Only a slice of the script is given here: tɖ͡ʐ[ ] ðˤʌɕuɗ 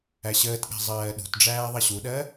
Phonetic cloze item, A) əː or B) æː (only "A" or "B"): B